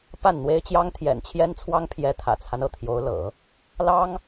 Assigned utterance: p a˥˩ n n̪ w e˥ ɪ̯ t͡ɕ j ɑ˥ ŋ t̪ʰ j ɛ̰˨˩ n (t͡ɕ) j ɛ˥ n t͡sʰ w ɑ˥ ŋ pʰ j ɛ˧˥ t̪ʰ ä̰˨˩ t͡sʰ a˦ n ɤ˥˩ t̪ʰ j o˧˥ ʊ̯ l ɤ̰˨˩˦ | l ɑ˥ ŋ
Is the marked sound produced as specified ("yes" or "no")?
no